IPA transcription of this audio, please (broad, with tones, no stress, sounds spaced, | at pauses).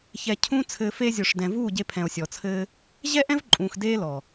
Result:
ç ɛ˧ cʰ ũː˦ t͡sʰ ɘː˧ f e˧ zʲ o˨ ʂ d ɛ̃˨ v uː˦˨ ɟ e˧ pʰ ɛ̃˨ o̯ sʲ ɔ˨ t͡sʰ ɘː˦ | ʑ ɛ˦ ʔ ɛ̃˦ v ǃʼ ũː˨ x d eː˦ l ɔ˨